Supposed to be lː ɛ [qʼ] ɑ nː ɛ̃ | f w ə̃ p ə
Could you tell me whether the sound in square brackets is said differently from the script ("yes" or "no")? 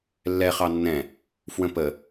yes